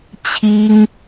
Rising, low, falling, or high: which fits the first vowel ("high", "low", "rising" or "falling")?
high